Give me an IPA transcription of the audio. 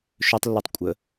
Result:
ʃ ɵ tˤ lː u tˤ kʷʼ ə

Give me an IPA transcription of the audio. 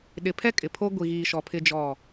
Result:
ɗ ɪ˨ pʰ ɛ˦ kʼ ɪ˨ pʰ o˦ ɡʷ i˨ ɣ iː˨ ʃ ɔ˨ pʰ ɪ˦ d͡ʒ ɔ˦˨

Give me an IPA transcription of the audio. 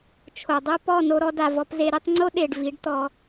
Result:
t͡ʃʰ o˨ dˤ ɛ˦ p ɔ˦˨ n o˧ ɾ ɔ˧ d a˨ v ɔ˧ p z e˧ ɾ i˧ tˤ ŋ͡ǀ o˦ ɗ e˨ ɖ v i˨˦ ɖ t̪ ɔ˧

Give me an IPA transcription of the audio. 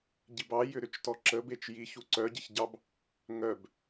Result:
ɟ i b ɑ j ʏ ɾ ʏ t͡ʃ t ɔ ǁ ə b e t͡ʃ j i ç u ǀ œ ɟ e ç ɟ ɑ b | ŋ œ b

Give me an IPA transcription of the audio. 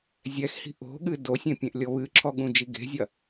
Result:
zʲ ɛ x h i̤ ʔ o̤ ɠ ɨ d o sʲ ẽ pʲ ẽ ʔ lʲ ɔ β ɨ ǁʰ ɔ ɠ ũ d͡ʒ i ɡ e̤ zʲ ɐ

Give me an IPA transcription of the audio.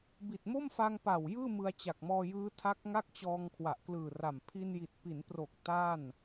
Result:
b i˨˩ t̚ m o˥˩ m f a˧ ŋ p a˨˩ w j ɯː˥˩ m ɯ˧ a̯ t͡ɕ a˨˩ k̚ m ɔː˧ j ɯː˦˥ tʰ a˦˥ k̚ ŋ a˥˩ k̚ t͡ɕ ɔː˧ ŋ kʰ w a˨˩ ʔ k l ɯː˨˩ r a˨˩ m pʰ i˧ n j i˨˩ t̚ p i˩˦ n p r o˨˩ k̚ t a˥˩ n

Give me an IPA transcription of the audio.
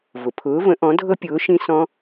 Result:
v ʊ˩ pʰ ʊː˨˥ v ə̃˨˥ ʔ ɔ̃˨˥ dʱ ɤ˦˥ pʲ ʊː˨˥ ʃ ĩ˦˥ s ɔ̃˦˥

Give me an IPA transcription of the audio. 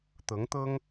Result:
t̪ ɤ˧˥ ŋ t̪ ɤ˥ ŋ

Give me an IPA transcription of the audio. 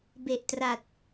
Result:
b e˨˩ ʔ t r a˨˩ t̚

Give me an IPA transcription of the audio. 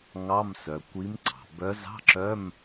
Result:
ŋ ɑ˧˥˧ m s œ˩ kʷ i˨˦ m ǀ ɑ̤˩ b œ˨˦ z ɑ̤˧˥˧ ǁ œ˧˥˧ m

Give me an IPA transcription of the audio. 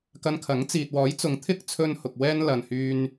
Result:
k ɐ˧ n kʰ ɐ˨˥ ŋ t͡s iː˨ t̚ w ɔː˨˥ j t͡s ʊ˨˥ ŋ t̪ʰ ɪ˥ k̚ t͡sʰ ɵ˧ n h ʊ˨ k̚ w ɛː˧ n l ɐ˨ n h yː˧ n

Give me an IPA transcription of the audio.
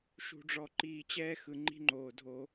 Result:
ʃ ṳ˨ ɖ͡ʐ ɔ˨ ǃ iː˨ t͡ɕ ɛː˦ x ɯ˨ ŋ͡ǃ i̤˦ ŋ͡ǃ oː˨ dʱ o˦

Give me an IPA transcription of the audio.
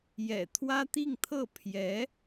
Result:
j ɛ̰˨˩ t̪ʰ w ä˥ t̪ i˥˧ ŋ t̪ʰ ɤ˥˩ pʰ j ɛ˧˥

